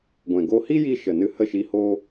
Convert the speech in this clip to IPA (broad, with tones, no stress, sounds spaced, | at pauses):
ɡʷ ɛ̃˨ ɡ o˧ h i˦ j i˧ ʃ ə˨ n ɨ˧ h ə˦˨ ʃ i˧ h o˦